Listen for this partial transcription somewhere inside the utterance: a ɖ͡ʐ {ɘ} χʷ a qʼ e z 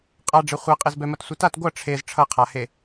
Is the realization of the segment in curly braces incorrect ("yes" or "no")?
yes